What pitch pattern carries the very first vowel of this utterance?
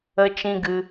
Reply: high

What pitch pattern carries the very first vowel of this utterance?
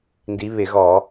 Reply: rising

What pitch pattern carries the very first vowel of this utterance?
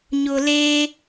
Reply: low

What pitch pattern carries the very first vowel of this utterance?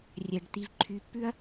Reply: low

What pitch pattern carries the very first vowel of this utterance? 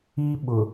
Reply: high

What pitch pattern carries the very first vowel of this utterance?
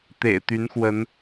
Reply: low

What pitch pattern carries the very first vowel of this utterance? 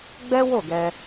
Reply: high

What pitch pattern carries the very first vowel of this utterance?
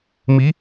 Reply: rising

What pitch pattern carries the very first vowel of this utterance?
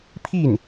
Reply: falling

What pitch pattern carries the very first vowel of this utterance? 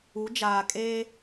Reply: rising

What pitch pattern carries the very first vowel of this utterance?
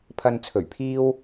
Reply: low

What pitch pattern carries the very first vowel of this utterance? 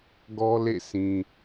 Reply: high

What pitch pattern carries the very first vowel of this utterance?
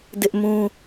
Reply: high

